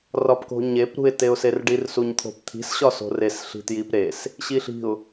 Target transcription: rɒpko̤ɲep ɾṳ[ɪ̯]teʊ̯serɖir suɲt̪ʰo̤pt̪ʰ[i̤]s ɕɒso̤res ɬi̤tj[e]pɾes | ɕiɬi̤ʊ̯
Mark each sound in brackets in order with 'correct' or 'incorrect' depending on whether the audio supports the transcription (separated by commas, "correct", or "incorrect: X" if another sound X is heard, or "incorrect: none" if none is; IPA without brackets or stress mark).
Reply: correct, correct, incorrect: i